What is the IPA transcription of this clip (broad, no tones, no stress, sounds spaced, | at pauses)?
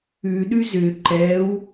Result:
ʉ ɗ ʉ z ʏ ǃ ɛ w